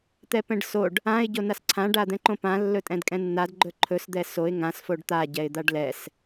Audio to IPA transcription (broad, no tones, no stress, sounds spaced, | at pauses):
t̪ ɛ p ɛ̃ ɖ s o ɖ | ã ɪ̯ ɟ o n a s ǀʰ ã ɖ a d̪ ɛ̃ ǃ õ p ã lː ɵ tʼ ɛ̃ d kʼ ɛ̃ nː a d ɡ͡ǃ ɵ ǃʰ ɵ s d̪ ɛ s o ɪ̯ ŋ ã s f o ɖ t̪ a ɟ ɛ ɪ̯ d̪ a ɖ l ɛ s